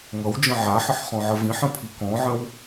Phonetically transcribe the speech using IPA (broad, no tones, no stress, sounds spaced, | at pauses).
ŋ ʌ w d͡ʒ ə̃ ʕ a ħ ə ħ χ ɔ̃ ʕ ə v ĩ ħ ə̃ pʰ i k ɔ̃ ʕ ə̃ w